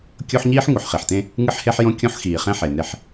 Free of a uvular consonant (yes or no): no